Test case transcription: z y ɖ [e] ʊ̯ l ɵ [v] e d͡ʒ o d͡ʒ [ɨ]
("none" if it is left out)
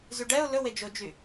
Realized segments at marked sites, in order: ɛ, w, y

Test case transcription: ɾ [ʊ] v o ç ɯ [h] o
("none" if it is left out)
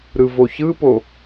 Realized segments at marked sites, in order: ɯ, p

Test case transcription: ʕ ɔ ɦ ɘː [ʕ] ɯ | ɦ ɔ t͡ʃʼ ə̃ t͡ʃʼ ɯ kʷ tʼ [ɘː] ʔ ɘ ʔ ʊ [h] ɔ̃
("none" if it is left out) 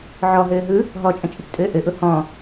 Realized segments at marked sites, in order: ɦ, ɘː, h

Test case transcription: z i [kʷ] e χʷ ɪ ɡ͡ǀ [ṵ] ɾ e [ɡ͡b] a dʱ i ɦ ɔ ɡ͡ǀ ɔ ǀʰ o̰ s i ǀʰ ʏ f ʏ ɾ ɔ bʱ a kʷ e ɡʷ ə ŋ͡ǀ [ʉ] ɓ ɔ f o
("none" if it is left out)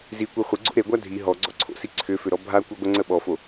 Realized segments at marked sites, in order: kʷ, o̰, ɡʷ, ə

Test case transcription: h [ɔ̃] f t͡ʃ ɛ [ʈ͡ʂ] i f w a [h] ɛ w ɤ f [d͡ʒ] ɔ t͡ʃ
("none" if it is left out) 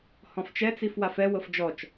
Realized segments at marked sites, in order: ɔ̃, t͡s, f, d͡ʒ

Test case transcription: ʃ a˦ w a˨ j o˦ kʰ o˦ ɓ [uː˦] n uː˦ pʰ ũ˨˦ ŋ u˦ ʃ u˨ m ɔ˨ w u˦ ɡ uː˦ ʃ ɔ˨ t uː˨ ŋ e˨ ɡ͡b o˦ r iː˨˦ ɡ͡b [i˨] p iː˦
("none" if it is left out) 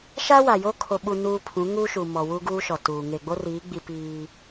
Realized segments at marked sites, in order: u˦, i˦

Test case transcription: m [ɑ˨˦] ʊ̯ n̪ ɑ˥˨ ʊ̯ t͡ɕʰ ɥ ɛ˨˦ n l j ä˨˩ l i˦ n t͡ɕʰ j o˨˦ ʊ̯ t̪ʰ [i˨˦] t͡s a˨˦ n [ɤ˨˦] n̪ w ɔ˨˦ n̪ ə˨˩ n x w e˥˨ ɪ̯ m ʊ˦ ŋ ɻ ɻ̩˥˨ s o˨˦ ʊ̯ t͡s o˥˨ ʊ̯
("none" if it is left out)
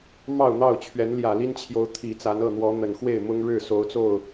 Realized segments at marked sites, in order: ɑ˥˨, i˨˩, ɤ˥˨

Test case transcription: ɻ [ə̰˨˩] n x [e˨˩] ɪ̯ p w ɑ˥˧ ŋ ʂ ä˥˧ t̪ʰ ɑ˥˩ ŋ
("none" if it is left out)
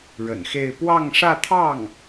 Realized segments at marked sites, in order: ə̰˨˩, e˥˧

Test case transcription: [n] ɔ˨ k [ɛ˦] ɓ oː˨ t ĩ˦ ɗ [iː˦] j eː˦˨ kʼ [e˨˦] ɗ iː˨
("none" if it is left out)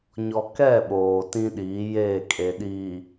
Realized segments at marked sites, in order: ɲ, ɛ˦˨, iː˨˦, e˨

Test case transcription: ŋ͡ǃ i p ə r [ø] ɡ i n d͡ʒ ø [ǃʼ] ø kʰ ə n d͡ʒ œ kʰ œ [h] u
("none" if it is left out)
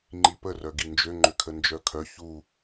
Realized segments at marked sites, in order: œ, ŋ͡ǃ, ç

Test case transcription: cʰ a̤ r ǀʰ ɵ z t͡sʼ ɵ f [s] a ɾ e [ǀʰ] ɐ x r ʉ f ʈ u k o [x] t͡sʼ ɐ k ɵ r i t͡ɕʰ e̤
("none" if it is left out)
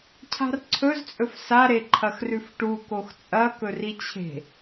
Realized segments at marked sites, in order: s, ǃʰ, x

